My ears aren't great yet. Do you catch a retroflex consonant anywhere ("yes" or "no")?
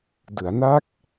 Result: no